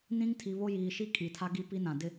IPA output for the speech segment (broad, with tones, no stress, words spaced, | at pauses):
nĩ˦ŋ tʰi˨βo˦jiː˨ʃi˦ kʼi˨tʰa˦ ɡi˦pi˦nã˨ dɪ˦